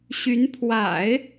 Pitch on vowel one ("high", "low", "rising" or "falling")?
rising